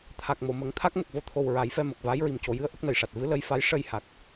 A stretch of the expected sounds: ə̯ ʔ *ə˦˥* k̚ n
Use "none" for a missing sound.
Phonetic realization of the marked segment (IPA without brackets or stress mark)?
ə˦˥